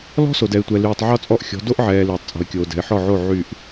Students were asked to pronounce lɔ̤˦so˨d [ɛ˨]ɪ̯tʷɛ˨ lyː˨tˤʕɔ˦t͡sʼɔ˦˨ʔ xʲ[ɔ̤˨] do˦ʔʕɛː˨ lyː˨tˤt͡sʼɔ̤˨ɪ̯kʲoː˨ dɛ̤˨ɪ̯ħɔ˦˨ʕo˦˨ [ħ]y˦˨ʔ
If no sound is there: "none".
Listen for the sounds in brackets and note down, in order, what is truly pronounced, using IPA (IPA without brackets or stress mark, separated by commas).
ɛ˨, ɔ̤˨˦, ʕ